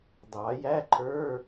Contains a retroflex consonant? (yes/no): no